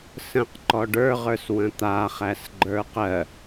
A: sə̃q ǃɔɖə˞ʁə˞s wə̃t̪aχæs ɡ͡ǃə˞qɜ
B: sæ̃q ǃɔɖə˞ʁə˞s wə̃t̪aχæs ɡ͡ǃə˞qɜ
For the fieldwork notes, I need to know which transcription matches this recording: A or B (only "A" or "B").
A